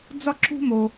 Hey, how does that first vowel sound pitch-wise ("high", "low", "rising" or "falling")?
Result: high